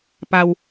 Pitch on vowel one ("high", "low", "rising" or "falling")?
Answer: low